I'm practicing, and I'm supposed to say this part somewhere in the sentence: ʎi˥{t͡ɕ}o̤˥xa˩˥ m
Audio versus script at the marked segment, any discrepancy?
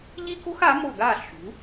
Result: yes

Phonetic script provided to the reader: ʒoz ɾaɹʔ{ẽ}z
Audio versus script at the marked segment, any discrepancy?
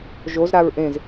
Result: no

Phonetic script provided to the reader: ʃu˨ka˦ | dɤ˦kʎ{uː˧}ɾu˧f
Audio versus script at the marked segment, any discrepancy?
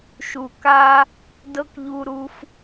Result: yes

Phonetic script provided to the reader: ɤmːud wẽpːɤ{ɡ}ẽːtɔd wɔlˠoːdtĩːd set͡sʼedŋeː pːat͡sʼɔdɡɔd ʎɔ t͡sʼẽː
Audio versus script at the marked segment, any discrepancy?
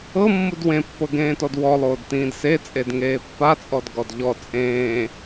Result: no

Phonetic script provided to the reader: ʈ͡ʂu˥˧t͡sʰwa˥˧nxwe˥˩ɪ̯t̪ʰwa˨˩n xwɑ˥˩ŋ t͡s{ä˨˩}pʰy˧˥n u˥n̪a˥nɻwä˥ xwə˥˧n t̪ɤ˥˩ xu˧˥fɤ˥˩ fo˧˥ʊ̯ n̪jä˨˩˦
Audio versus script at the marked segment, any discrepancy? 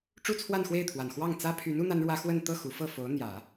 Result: yes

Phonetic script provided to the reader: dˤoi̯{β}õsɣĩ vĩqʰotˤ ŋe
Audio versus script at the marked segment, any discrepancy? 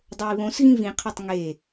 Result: no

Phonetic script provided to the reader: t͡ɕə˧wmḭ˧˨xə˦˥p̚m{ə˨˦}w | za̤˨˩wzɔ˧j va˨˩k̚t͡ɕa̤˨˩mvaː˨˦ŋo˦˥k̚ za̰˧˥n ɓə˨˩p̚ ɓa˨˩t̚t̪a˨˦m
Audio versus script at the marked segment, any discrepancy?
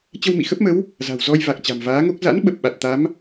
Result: no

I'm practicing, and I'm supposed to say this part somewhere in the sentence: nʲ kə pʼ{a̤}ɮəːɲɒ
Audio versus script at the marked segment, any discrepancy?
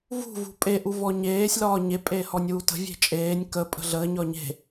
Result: yes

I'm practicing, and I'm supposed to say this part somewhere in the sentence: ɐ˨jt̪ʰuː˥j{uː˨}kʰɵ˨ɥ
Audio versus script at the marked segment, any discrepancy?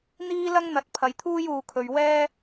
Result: no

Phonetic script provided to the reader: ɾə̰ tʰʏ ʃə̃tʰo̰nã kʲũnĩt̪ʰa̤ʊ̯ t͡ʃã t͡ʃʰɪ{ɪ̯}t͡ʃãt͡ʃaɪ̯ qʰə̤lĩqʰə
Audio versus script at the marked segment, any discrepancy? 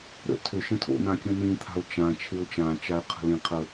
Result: yes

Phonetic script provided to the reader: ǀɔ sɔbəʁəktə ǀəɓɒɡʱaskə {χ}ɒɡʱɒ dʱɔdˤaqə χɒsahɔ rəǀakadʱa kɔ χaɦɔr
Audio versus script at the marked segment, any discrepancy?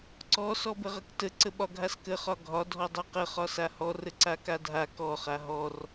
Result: no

